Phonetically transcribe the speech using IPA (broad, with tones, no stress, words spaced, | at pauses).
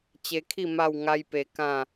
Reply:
t͡ɕe˧kʰi˥˧ ma˥˧wŋa˦jpe˧kã˥˧